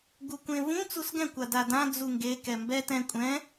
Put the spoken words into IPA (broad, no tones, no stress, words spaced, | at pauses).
ɡukʷẽvũ t͡susɡɛ̃ kʷadadã d͡zuŋɡe kɛmbɛ tɛ̃ kʷʼɛ̃